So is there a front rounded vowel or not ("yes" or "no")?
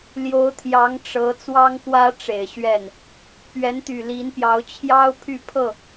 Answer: yes